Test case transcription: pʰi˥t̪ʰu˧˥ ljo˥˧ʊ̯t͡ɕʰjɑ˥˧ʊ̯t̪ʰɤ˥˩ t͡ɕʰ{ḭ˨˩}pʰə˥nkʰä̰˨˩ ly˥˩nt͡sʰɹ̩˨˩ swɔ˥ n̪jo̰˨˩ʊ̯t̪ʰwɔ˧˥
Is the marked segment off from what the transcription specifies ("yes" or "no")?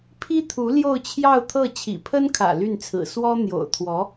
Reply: no